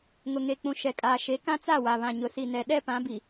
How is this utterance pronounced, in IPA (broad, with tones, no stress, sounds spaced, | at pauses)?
ŋ ʊ˨ ŋ e˨ k͡p ũ˨ ʃ ɛ˨ kʼ aː˨ ʃ e˨˦ k ã˦ t͡s a˦˨ w a˨ β ã˨ ɲ ʊ˨ s i˨ n ɛ˨ ɗ ɛ˦ p ã˨˦ b i˨